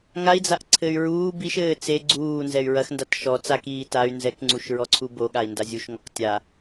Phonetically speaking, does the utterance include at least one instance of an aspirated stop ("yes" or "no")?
yes